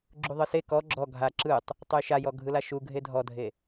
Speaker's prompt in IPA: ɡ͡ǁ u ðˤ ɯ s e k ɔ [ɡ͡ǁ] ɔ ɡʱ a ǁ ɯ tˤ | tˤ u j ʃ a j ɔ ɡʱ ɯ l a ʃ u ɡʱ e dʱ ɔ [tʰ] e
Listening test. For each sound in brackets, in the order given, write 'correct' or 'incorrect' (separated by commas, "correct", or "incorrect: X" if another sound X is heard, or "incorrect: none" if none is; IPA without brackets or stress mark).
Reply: correct, incorrect: dʱ